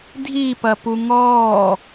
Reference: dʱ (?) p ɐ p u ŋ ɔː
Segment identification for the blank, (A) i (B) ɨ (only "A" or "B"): A